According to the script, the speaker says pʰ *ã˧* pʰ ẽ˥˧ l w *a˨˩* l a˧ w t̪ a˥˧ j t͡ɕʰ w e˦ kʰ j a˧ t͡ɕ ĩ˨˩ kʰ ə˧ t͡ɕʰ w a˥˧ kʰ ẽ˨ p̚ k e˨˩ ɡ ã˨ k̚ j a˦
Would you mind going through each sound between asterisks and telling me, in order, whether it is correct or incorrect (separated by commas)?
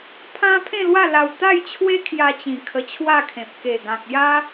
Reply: incorrect, incorrect